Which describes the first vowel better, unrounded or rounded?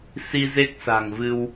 unrounded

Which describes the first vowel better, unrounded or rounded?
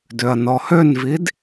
rounded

